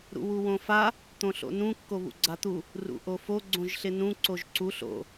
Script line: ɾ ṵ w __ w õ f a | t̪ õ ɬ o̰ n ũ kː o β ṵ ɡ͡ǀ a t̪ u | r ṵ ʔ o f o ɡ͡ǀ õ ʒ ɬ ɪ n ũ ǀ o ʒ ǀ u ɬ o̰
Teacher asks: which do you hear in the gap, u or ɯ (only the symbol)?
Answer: u